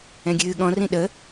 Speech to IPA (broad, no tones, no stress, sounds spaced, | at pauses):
ɛ̃ ɡʲ ɨː ɠ ɔ̃ r ĩ ɗ ə